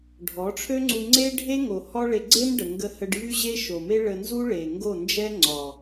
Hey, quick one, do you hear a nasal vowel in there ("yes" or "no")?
no